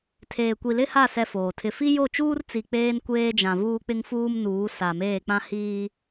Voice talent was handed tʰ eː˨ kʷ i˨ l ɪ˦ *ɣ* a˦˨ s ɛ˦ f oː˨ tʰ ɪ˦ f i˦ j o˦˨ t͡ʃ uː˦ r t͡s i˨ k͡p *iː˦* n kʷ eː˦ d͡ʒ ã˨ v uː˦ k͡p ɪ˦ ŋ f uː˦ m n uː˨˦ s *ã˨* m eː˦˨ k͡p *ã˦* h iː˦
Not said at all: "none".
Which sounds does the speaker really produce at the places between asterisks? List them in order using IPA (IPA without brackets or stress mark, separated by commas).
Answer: h, eː˦, a˨, ã˦